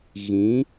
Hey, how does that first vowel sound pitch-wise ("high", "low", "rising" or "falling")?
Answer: rising